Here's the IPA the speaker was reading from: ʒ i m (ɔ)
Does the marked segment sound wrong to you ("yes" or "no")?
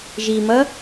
yes